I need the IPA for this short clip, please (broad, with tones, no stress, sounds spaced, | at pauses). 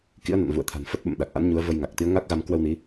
k ḭ˧˥ ə̯ n a̰˧˨ n v ṵ˧˨ ə̯ t̪ʰ a̤˨˩ n f ə˦˥ t̚ ɓ ə̰˧˨ m ɗ a˨˩ k̚ ʔ a̰˧˥ n ɲ u˨˦ ə̯ v ə˧ j ŋ a˨˩ k̚ t̪ i˨˦ ə̯ ŋ a˦˥ k̚ ɣ a˧ m k w ə˧ w n i˨˦